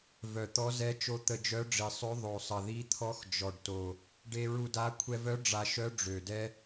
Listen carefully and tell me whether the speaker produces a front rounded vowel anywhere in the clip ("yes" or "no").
yes